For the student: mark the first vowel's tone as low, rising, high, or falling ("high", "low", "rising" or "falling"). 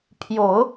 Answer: low